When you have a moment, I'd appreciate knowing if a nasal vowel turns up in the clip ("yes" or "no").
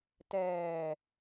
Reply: no